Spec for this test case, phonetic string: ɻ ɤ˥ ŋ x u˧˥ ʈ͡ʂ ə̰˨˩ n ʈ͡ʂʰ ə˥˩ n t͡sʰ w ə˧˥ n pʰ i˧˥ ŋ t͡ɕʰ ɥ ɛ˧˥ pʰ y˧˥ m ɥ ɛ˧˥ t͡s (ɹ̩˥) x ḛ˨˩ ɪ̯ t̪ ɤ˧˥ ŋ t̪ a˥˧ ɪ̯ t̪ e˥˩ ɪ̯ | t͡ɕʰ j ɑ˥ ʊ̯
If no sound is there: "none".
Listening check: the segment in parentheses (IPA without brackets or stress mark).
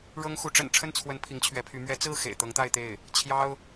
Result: ɹ̩˥˩